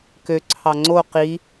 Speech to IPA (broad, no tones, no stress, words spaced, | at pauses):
kø ǀʰɑŋ͡ǀo qi